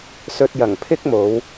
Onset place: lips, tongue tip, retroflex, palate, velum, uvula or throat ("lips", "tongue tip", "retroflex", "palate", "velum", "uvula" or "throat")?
tongue tip